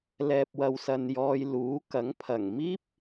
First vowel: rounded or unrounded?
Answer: unrounded